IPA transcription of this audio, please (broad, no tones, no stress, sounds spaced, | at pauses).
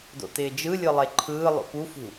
d o̰ t ɪː d͡ʒ ɯ lʲ ɯ lˠ e ǃʰ ɯː lˠ o̰ p u f ṳ